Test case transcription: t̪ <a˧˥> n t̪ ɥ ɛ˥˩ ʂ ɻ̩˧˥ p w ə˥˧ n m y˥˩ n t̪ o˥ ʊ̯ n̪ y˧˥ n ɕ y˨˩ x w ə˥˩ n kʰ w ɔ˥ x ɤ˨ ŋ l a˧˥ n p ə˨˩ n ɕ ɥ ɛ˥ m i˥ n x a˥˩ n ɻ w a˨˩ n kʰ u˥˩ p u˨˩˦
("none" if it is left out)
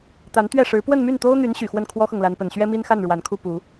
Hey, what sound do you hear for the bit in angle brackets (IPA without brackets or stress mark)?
a˧˥